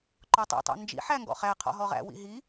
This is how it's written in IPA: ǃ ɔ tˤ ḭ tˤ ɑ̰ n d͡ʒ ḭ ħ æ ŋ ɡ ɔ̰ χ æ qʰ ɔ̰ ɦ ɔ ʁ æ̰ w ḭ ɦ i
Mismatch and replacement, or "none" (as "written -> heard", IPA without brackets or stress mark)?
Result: none